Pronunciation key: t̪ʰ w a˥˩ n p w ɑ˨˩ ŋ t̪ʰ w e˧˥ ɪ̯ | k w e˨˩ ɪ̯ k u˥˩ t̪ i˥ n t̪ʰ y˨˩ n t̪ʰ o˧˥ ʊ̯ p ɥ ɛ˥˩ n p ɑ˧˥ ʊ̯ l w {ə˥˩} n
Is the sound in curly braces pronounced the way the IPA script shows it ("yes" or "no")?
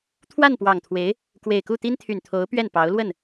yes